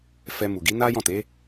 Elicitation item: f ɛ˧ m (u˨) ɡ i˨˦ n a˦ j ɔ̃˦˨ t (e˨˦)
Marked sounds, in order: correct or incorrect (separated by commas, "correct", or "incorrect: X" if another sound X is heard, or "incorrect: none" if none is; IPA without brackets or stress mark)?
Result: correct, correct